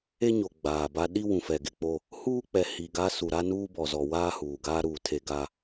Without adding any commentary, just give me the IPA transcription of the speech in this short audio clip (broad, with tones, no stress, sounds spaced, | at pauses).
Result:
e˦ ɲ o˨ ɡ͡b aː˨ b a˦ ɗ i˦ w ũ˨ f ɛ˨ ɡ ɪ˦ k͡p o˦ | h uː˦ k͡p ɛ˨ h i˨ ɡ a˦ s u˨ ɾ a˦ n uː˦ b ɔ˨ z ɔ˨ w aː˦ h uː˨ ɡ aː˦ ɾ uː˨ tʰ e˨ ɡ a˨